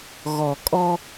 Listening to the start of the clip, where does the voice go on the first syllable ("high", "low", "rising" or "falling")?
low